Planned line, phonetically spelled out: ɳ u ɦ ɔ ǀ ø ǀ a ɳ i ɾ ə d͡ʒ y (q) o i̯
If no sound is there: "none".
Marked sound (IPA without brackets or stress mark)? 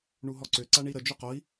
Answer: q